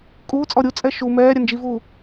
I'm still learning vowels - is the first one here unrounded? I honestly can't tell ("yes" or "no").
no